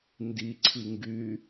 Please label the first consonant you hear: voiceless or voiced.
voiced